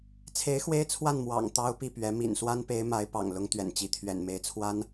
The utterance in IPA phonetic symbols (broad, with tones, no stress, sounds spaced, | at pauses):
t͡sʰ e˧˥ ɪ̯ x w e˥ ɪ̯ t͡sʰ w a˥˩ n m w ɑ̰˨˩ ŋ t̪ ɑ˥ ʊ̯ p i˥˩ p ɥ ɛ˧˥ m ḭ˨˩ n s w a˥ n p e˧˥ ɪ̯ m a˧˥ ɪ̯ p ɑ̰˨˩ ŋ l ʊ˧˥ ŋ t̪ ɥ ɛ̰˨˩ n t͡ɕ i˧˥ t̪ʰ ɥ ɛ̰˨˩ n m e˧˥ ɪ̯ t͡sʰ w a˥ n